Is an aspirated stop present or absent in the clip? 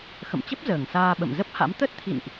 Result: present